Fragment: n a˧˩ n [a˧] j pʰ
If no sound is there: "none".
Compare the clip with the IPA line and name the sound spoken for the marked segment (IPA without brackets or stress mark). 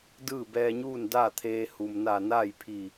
a˥˨